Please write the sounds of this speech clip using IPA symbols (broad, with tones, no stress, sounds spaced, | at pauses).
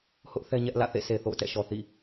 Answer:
h ʊ˦ ʔ θ ɛ˦ ɲ ɛ˦ ʔ l ä̰˦˨ θ ḛ˦˨ sʰ e˨ θ o̰˦˨ ʊ̯ t ɛ̰˦˨ ʃ ɔ˨ θ ḭ˦˨